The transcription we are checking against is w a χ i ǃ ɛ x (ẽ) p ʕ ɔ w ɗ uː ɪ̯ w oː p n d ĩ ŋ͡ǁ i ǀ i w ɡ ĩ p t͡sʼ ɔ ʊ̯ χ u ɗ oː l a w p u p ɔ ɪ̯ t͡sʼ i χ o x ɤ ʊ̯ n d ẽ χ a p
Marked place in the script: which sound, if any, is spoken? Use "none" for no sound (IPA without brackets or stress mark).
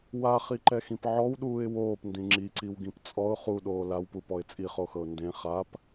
ĩ